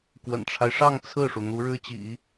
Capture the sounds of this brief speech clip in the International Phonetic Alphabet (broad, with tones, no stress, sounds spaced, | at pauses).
k w ə̰˨˩ n ʈ͡ʂʰ a˦ ɪ̯ ʂ ɑ˥˧ ŋ t͡sʰ ɹ̩˥˩ ʂ u˩ n̪ u˧˥ ɻ ɻ̩˥ t͡ɕ ḭ˨˩˦